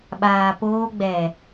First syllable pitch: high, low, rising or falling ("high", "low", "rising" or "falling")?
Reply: low